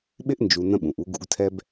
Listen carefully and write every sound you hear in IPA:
ɓ ɪ˦ ʔ n d͡ʒ u˨ n ə̃˦ ɓ ũ˨ ʔ u˦ ɡ ṵ˦ ɡ tʰ ɛ˦ b

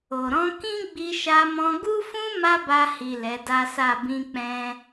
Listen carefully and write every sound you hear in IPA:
o˨ ɾ ɔ̃˧ k ĩ˦ ɡ͡b i˧ ʃ a˧ m ɔ̃˧ ɡ u˦ f ũ˦ m a˦ b a˧ h i˨ l ɛ˨˦ d a˦ s a˦˨ b ĩ˧ k͡p ɛ̃˧

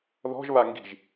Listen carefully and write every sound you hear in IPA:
ð ɔ̤ ʒ β a ŋ ɡ i̤ ʒ

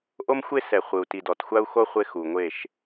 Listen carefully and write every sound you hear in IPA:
ʔ o˦ m xʷ e˦ s ɛ˨ χʷ ɯ˨ u̯ t i˨ d ɔ˨ t xʷ a˦ u̯ x o˦ χʷ e˦ x u˨ ŋʷ e˦˨ ʃ

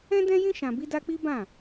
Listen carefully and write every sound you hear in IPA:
ɛ̃˦ d ɛ̃˦ j ĩ˦ ʃ ã˧ b i˦ d a˦ k͡p i˦ b ã˦˨

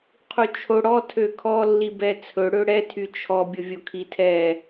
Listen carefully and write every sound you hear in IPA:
qʰ u t͡ʃʰ o ɽ ɔ tʰ ø kʰ ɔ lː i b ɛ t͡sʰ ɵ ɽ ø ɽ ɛ tʰ y t͡ʃʰ ɔ bʲ ʊ vʲ o kʰ i tʰ ɛ

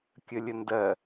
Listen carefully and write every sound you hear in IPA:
kʲ ə lʲ ə n d ɜ

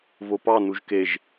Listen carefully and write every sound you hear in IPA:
v o p ɑ n u ʒ k e ʒ

